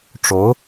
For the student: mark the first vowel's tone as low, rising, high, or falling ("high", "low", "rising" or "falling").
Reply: rising